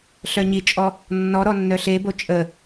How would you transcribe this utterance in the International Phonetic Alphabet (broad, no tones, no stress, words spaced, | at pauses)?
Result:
ɬœɲit͡ʃʼɔ | nːɔɾɔ nːœɬebo t͡ʃʼə